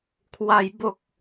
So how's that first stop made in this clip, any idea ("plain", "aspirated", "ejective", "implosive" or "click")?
aspirated